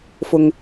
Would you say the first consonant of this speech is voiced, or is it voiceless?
voiceless